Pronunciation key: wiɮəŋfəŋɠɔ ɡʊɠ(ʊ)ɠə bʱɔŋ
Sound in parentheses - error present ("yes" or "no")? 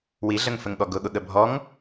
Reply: no